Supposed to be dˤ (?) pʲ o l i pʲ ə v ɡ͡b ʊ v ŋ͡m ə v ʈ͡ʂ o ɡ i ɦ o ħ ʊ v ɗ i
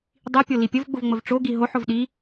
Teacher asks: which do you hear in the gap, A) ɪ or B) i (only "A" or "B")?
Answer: B